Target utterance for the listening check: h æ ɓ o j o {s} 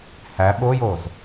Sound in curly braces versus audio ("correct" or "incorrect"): incorrect